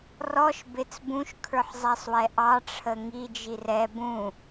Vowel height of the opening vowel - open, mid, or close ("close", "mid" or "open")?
mid